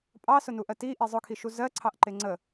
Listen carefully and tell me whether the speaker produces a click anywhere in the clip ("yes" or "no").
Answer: yes